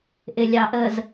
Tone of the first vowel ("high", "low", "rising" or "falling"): low